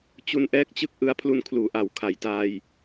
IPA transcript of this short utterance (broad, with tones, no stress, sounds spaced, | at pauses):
t͡ɕ u˧ n ʔ ɛː˦˥ k̚ t͡ɕ ɯ˦˥ k̚ ʔ ɯ˦˥ a̯ pʰ l u˧ n kʰ l uː˩˦ ʔ a˩˦ w kʰ a˨˩ j t aː˧ j